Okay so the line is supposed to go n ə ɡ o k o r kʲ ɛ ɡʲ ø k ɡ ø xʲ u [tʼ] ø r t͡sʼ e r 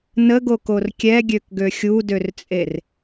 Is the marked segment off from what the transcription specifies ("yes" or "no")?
yes